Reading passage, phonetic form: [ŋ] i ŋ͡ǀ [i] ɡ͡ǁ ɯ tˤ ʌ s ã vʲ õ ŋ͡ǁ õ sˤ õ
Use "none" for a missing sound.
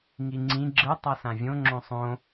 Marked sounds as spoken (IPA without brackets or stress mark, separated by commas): ŋ, ĩ